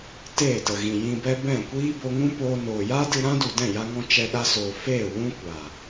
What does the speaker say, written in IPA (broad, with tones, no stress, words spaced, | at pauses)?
teː˦˨tə˨ɣĩ˨ jĩ˧bɛ˦ bɛ̃˦˨kʷiː˦ bo˧ŋũ˦poː˧noː˨ jaː˦dɨ˧ ɾã˦du˨ dɛ̃˦˨ja˧ŋɔ̃˧ t͡ʃɛ˧ɗa˧soː˨ feː˦˨ wũ˦kʷa˨